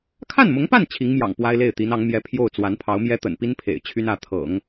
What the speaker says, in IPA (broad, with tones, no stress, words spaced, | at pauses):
kʰa˥˩nmʊ˧˥ŋpa˥˩n t͡ɕʰi˧˥ŋmjɑ̰˨˩ŋ pwa˥ɪ̯le˥˩ɪ̯t̪i˧˥n ɑ˧˥ŋmjɛ˧˥ pʰjo˥˩ʊ̯ t͡swa˧˥npʰɑ˧˥ʊ̯mjɛ˥ t̪ə̰˨˩npi˥n pʰḛ˨˩ɪ̯t͡ɕʰy˥nä˧˥ t̪ʰɤ̰˨˩˦ŋ